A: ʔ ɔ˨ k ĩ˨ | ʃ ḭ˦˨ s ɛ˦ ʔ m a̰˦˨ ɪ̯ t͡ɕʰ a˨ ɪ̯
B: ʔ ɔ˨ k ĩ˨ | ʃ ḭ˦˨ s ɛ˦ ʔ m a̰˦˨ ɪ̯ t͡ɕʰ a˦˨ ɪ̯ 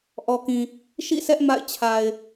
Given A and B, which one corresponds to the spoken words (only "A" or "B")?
A